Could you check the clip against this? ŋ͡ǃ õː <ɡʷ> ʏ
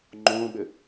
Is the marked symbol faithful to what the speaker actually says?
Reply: no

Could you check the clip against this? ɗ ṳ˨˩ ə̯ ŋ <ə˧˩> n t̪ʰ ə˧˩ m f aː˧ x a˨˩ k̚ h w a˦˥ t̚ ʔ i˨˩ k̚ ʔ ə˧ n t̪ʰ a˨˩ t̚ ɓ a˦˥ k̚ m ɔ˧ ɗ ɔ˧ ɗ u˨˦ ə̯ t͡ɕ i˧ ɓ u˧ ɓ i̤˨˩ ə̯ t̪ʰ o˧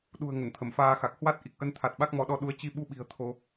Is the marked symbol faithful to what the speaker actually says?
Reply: yes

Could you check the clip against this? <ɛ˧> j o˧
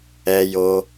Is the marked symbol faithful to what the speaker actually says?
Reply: yes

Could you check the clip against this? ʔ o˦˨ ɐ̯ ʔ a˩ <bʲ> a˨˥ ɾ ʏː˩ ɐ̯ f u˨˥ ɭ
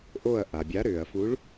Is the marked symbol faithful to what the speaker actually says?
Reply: yes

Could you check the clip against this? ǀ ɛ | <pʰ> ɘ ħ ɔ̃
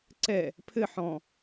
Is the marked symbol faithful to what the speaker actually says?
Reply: yes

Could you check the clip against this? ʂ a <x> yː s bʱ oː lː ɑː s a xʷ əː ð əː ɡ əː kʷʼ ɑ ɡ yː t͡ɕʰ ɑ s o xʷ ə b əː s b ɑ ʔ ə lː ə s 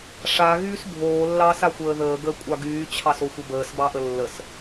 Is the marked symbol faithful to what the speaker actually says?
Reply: no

